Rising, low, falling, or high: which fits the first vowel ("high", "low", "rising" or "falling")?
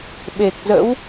low